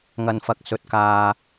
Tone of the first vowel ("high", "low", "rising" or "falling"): low